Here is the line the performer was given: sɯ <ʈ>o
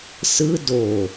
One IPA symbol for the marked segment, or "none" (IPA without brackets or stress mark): d